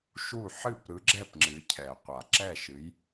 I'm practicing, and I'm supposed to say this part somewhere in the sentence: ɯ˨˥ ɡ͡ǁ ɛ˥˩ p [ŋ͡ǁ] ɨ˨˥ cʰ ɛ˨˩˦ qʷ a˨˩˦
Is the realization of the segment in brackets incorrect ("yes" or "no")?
no